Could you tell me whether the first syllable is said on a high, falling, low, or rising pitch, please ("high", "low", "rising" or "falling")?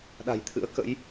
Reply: low